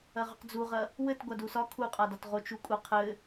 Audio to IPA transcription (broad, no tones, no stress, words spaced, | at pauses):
ɐʁʏqd͡zuʁɐ | wɘt ɡʷadusɒ kʰuqʼadɒt ʁot͡ʃukʷʼɐ qʰɘ